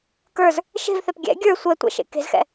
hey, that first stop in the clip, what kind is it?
plain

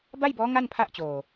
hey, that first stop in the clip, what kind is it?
plain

